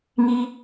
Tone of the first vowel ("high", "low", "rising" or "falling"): high